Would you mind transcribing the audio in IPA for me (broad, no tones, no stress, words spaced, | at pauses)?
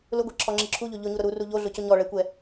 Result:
lʊɡʷiǁʰɔŋ͡ǁi ǁʰuʎo ʎʊɲuɾʊ ɾuru ʎoɮʊcʊ ɲɔɭɛkʷɛ